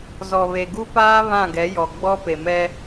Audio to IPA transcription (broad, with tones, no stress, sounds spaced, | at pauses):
z ɔ˨ β e˨ ɡ u˦ p aː˦ β ã˦˨ ɡ ɛ˨˦ j ɔ˨ ɡ͡b ɔ˦ p e˨ m ɛ˦